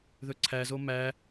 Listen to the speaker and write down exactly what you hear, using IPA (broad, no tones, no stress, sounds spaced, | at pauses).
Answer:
ð ɵ ǀʰ æ z o m æ